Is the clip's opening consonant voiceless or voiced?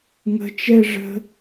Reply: voiced